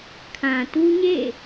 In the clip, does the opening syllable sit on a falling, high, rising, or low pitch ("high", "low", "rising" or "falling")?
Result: low